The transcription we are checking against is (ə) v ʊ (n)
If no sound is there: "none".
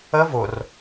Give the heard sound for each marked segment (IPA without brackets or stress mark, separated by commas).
ə, r